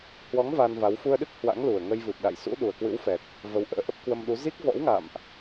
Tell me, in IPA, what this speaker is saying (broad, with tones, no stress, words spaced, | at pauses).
hwɔ˨˦ŋ va˧nva˨˦w fu˧ə̯ɗɨ˦˥k̚ hwa̰˧˥ŋlu˨˩ə̯ŋə˧j vɨ˨˩p̚ɗa̰˧˨j sṵ˧˥ ɗu˨˩ə̯kwɨ̰˧˥wfɛ˨˩t̚ | və˨˦wʔə̰ː˧˥ʔə˦˥p̚ kwə˧mɗu˨˦ zi˦˥k̚vɔ̰˧˥wŋa̰˧˨mʔ